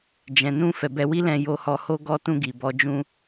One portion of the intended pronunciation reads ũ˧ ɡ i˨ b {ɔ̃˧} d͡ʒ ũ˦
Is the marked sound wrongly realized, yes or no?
yes